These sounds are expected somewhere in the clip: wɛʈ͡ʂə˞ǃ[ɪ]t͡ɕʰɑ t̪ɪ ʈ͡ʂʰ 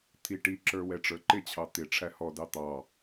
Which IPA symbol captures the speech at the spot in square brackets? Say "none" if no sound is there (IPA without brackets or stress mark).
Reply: ɪ